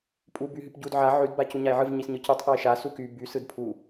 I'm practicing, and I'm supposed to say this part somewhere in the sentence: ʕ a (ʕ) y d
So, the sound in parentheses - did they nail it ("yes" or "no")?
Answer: yes